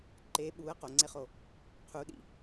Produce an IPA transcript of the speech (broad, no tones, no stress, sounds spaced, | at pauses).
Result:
ǃ e ɓ u ə̯ q o ŋ͡ǀ e χ o | qʰ u ɗ ḭ